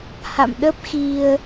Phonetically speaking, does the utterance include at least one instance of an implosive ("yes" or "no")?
yes